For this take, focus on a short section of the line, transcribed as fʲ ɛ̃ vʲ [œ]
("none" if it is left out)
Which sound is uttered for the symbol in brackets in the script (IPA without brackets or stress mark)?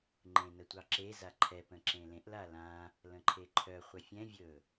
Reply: ɵ